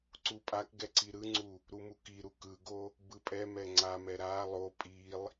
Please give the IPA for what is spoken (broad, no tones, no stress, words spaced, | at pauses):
ǀupʼakɡɛ ǀiɾɯŋ͡ǀu | ɾumukiɾu kɯɡo | bɯpʼɛmɛ ŋ͡ǀamɛ ɾa lˠo pʼilˠ